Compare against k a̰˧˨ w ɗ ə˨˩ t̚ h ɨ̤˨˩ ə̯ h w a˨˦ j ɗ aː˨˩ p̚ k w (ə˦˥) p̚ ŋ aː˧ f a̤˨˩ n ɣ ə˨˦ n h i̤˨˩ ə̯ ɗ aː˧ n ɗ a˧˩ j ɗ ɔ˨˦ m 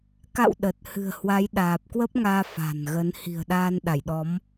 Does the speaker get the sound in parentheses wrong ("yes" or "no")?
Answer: no